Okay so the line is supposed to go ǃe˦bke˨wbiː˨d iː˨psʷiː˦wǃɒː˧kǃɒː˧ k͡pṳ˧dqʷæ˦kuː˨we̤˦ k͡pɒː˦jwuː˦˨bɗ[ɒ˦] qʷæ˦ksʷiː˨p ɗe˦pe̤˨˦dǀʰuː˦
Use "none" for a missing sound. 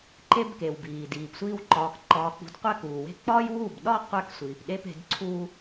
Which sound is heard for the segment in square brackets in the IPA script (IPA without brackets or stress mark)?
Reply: ɒ˦